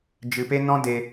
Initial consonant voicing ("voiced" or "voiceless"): voiced